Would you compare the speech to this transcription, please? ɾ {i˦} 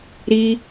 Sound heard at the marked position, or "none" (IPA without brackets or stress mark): i˦